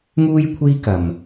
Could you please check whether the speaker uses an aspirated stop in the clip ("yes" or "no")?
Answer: yes